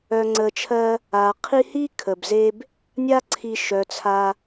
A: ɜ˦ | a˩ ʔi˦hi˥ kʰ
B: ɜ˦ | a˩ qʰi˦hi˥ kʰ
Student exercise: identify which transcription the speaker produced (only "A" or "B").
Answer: B